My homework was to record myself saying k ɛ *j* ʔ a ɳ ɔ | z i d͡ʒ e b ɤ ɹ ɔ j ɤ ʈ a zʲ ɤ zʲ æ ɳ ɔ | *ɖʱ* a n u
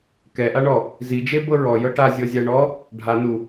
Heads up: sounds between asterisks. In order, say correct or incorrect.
incorrect: none, correct

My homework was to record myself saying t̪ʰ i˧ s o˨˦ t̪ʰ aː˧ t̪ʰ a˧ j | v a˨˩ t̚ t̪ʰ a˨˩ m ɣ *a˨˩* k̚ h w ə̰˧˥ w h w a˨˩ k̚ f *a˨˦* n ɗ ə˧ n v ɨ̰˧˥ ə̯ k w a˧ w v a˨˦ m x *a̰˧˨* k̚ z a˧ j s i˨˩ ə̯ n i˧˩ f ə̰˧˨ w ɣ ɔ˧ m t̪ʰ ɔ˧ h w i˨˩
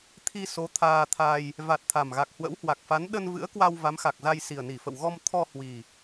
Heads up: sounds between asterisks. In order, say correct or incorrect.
correct, correct, incorrect: a˨˩

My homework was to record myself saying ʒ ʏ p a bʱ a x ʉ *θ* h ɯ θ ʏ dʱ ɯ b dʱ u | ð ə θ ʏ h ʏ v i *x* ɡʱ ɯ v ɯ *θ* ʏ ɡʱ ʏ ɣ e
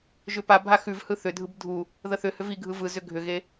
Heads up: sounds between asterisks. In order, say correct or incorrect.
incorrect: v, incorrect: none, incorrect: z

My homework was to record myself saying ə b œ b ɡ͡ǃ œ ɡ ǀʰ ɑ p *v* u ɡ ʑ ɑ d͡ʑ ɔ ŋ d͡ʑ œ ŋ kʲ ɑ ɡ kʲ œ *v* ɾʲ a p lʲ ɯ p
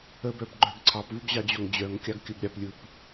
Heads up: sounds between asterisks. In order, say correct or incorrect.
correct, incorrect: b

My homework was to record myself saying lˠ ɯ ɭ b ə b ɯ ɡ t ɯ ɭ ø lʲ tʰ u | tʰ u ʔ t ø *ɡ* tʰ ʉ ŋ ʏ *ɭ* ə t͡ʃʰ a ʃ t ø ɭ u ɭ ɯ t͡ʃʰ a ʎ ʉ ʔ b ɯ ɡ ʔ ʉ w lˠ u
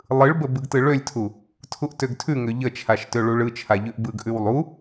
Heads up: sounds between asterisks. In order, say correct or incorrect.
correct, incorrect: ʎ

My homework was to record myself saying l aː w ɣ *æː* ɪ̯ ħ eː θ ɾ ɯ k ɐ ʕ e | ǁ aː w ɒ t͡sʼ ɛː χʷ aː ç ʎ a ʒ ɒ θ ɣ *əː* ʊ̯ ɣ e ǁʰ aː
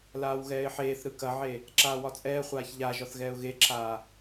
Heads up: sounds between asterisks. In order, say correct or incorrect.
incorrect: ɛː, incorrect: ɛː

